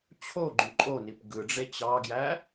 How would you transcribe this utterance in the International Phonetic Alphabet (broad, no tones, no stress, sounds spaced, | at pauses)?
t͡ɕʰ o ɡ͡ǃ y ǃʼ o n i p ɡ ɯ ɖ͡ʐ e t͡ɕ ɑ ɡ j æ